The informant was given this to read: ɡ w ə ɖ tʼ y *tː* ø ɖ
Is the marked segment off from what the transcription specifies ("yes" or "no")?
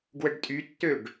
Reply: no